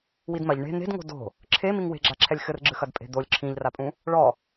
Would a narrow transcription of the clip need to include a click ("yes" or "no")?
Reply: yes